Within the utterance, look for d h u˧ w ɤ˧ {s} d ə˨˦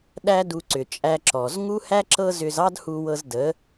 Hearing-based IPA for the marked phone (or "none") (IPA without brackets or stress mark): z